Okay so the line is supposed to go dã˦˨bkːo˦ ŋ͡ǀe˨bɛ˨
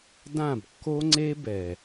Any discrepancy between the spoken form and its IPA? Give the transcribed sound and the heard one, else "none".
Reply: e˨ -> e˦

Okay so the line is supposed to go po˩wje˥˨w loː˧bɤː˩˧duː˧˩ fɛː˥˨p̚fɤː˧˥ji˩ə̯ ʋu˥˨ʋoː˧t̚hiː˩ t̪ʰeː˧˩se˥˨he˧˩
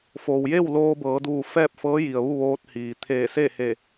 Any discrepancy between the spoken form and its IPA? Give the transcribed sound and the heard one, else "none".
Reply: p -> f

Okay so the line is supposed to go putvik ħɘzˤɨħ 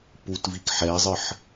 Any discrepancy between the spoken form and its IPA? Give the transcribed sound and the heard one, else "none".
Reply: ɘ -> ɛ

